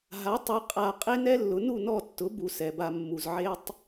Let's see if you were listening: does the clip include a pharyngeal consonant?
yes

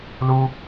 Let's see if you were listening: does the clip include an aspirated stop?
no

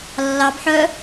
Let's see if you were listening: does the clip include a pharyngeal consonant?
yes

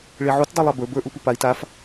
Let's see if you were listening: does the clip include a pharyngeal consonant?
yes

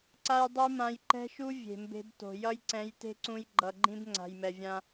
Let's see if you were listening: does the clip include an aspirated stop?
no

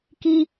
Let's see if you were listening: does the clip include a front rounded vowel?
no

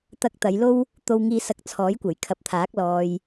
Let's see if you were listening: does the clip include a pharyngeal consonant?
no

